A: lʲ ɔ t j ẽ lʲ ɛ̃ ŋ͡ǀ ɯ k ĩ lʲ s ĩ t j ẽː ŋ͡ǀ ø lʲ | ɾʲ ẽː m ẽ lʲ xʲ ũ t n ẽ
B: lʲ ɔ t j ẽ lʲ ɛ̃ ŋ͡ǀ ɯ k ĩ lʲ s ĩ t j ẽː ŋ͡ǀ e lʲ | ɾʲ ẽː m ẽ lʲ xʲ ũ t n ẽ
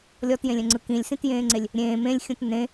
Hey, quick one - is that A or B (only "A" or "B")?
B